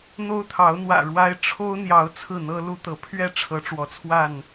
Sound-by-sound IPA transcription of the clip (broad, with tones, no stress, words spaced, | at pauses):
n̪o˦ʊ̯t̪ʰɑ˨˦ʊ̯n̪wä̰˨˩ ɻwa˦ɪ̯ ʈ͡ʂʰo˦ʊ̯n̪jɑ˨˦ʊ̯ t͡sʰɹ̩˥˨n̪ɤ˦lu˦t̪ɤ˨˦ pʰɥɛ˥˨ ʈ͡ʂʰɤ˨˦ʈ͡ʂwɔ˨˦t͡sʰwa˥˨n